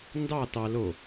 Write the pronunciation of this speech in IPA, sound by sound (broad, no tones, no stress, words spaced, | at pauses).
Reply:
ndɑ tɑ lo